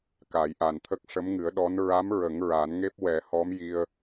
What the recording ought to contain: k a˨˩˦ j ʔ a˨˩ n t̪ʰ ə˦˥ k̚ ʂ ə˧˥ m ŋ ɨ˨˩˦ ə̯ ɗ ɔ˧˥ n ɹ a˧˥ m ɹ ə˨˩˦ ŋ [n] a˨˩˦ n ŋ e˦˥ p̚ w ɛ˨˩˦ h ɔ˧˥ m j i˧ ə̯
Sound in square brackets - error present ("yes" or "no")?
yes